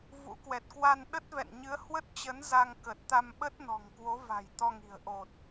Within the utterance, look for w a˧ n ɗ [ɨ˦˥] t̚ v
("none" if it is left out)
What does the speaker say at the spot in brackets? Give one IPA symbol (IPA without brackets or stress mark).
ə˦˥